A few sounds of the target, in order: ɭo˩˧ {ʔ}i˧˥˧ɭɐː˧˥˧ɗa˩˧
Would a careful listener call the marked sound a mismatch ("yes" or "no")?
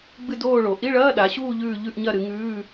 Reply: no